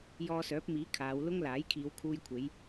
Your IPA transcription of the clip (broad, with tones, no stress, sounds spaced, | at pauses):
j ɔː˧ s œː˨˥ p̚ m iː˨˥ kʰ aː˨˧ w l ʊ˥ ŋ l aː˨˥ j kʰ iː˨˧ w kʰ uː˧ j kʷʰ e˨˧ j